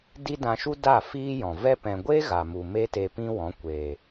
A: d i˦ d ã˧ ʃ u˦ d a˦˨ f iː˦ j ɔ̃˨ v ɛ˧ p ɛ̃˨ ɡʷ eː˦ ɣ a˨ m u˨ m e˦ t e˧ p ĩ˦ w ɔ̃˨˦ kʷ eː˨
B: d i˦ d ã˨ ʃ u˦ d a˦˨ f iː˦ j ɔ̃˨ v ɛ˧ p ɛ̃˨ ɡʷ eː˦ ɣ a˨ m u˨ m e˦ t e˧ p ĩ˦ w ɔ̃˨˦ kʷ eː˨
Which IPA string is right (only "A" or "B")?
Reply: A